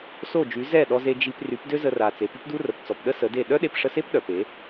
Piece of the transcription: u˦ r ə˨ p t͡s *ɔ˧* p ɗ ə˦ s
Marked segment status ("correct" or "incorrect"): incorrect